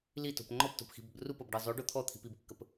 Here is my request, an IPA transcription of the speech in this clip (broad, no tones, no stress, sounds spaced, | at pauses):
l i t o̤ p ŋ͡ǃ ɔ p t o̤ p x i̤ b ə b r u p ɤ b ɖ ɤ zˤ o ɖ o t̪ʰ ɔ t̪ʰ i̤ p i b kː ə p